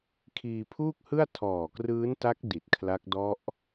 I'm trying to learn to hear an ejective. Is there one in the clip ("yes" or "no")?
no